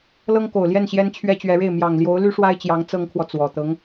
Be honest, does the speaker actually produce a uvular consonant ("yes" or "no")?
no